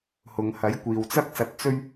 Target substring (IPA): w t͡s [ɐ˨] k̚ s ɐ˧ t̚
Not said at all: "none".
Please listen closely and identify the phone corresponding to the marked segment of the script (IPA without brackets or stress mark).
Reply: ɐ˥